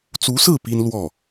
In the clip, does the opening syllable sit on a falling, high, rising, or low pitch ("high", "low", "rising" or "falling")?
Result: rising